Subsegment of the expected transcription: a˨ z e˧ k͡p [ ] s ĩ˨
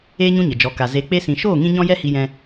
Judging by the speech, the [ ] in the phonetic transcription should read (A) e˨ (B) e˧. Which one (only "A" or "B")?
B